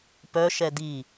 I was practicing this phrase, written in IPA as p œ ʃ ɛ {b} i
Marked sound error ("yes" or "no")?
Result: yes